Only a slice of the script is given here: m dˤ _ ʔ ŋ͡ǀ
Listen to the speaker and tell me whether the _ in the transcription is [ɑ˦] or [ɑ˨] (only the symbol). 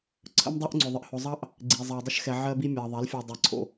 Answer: ɑ˦